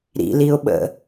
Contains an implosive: yes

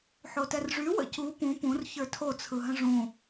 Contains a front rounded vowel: yes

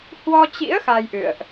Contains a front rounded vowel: no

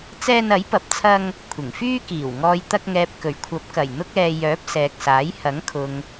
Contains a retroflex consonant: no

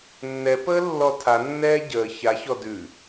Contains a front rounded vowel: no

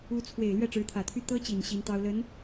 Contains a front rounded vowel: yes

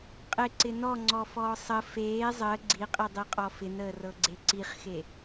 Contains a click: yes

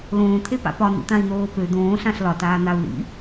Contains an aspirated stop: yes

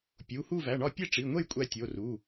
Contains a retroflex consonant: yes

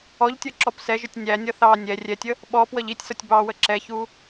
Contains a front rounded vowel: no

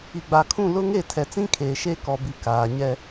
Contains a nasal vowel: yes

